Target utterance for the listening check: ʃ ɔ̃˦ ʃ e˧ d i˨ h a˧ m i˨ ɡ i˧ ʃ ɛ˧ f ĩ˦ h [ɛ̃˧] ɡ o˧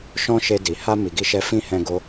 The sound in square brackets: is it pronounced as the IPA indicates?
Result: yes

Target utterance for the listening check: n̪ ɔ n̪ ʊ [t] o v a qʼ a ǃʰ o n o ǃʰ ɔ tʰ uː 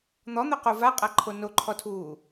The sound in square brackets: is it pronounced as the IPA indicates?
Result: no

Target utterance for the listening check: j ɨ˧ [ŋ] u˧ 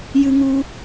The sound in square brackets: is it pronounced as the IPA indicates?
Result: yes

